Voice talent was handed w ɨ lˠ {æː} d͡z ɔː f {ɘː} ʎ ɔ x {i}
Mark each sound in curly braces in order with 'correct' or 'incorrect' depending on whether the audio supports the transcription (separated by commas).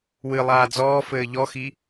incorrect, correct, correct